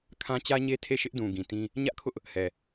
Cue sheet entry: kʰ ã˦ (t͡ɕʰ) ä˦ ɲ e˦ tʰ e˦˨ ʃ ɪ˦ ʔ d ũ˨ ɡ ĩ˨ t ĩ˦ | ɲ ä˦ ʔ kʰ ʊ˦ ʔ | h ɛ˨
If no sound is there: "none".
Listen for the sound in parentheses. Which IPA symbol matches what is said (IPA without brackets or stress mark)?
t͡ɕ